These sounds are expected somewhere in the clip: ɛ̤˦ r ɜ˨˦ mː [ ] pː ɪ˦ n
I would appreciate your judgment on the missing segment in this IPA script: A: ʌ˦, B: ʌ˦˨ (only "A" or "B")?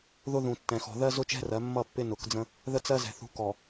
B